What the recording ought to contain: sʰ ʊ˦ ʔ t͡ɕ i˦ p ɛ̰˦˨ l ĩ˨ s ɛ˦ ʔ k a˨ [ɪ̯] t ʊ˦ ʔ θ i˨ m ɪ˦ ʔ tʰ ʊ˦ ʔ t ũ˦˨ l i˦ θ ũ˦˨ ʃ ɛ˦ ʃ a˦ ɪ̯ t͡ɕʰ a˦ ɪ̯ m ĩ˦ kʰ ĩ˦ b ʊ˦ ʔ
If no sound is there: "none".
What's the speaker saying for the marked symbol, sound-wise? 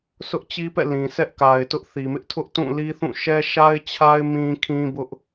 ɪ̯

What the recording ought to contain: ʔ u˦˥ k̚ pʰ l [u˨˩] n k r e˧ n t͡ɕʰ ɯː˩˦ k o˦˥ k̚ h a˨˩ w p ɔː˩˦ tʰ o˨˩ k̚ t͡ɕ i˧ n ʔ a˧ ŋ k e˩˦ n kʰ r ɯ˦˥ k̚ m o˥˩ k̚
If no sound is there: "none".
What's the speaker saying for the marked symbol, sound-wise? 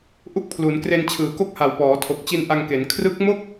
u˩˦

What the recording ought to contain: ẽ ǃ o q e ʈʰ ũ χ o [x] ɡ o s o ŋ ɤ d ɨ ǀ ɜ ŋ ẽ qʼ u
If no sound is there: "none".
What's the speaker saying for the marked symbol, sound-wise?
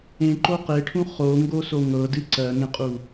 ŋ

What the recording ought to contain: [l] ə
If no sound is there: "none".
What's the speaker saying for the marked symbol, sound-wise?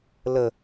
l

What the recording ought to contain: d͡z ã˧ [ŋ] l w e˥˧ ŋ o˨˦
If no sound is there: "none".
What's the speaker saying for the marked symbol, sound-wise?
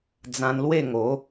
n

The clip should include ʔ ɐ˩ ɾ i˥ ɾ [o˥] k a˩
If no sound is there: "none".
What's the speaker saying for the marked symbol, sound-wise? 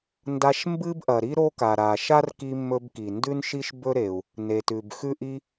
o˥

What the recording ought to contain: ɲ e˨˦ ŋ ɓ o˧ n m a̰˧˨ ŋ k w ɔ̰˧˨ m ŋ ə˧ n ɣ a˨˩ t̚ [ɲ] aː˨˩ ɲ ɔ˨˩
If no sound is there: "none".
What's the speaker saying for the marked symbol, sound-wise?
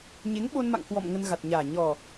ɲ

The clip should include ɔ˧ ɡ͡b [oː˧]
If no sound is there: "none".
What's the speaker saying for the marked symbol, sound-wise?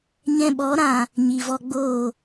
oː˦˨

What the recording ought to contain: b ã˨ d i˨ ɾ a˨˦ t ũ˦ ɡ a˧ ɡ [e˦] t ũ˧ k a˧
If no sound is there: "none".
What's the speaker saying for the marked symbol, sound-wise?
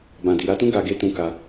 e˦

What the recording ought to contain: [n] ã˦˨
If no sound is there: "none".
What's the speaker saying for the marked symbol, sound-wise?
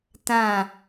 t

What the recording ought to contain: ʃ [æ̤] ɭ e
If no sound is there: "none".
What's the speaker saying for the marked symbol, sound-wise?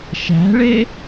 æ̤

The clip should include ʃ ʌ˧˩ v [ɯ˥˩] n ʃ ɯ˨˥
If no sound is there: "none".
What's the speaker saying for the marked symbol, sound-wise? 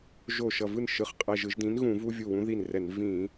ɯ˥˩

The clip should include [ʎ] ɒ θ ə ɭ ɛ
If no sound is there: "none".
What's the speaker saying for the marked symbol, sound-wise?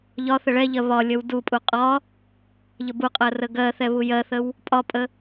ʎ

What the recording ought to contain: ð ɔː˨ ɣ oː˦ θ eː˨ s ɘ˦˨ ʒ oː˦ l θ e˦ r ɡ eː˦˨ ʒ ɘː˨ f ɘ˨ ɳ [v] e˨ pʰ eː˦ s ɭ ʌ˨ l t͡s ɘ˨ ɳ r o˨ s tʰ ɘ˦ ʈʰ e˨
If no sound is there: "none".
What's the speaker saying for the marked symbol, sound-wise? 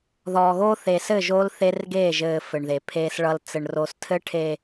ð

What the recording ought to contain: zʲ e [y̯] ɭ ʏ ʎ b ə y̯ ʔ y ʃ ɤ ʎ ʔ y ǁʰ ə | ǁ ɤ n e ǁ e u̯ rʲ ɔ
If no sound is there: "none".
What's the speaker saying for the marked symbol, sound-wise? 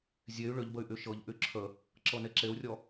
y̯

